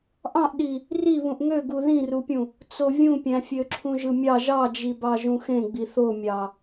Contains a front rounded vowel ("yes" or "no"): yes